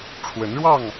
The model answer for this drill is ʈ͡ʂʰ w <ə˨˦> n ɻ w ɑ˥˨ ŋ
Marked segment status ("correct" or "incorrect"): correct